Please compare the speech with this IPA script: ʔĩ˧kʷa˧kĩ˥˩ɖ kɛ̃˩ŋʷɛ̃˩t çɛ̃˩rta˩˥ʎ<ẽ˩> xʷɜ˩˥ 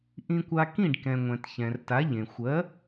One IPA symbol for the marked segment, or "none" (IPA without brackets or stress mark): ẽ˩